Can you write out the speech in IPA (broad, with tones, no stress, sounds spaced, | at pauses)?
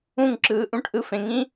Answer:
ũ˦˨ ŋ ǁ ɯː˨ ʔ ũ˧ ʈ ʔ ɯ˧ f ẽ˨ ŋ ĩ˦